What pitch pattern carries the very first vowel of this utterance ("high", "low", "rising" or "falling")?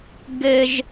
high